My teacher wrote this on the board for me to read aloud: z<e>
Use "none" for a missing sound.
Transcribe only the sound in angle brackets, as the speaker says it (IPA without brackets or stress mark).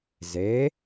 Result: e